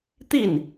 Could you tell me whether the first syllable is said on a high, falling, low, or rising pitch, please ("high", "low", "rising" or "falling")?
falling